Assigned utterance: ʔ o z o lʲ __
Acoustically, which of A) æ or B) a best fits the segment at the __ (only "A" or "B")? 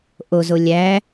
A